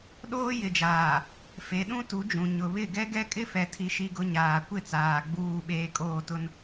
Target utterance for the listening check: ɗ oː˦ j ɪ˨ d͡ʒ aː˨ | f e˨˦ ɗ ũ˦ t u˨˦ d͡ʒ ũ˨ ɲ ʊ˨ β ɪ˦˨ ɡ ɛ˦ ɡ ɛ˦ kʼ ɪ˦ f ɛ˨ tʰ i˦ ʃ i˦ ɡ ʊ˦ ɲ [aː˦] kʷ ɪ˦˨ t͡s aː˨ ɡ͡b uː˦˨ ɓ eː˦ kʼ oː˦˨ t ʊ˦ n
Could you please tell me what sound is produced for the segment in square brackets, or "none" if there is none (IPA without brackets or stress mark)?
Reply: aː˨